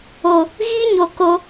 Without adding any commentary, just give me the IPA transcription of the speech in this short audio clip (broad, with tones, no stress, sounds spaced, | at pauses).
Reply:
o˨ | ɣ iː˦ ɲ o˨ k o˧